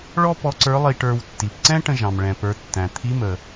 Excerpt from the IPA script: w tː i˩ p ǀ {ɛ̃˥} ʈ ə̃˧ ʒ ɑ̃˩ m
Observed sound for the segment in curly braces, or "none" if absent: ɛ̃˥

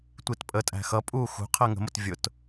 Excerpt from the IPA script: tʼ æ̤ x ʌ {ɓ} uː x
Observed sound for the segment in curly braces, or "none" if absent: pʼ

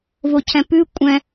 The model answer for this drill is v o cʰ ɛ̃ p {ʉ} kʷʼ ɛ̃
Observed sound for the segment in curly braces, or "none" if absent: ʉ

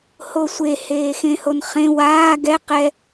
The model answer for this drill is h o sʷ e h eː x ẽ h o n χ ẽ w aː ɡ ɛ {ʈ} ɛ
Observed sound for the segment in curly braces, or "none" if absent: q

